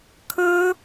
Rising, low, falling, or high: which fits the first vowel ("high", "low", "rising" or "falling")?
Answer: high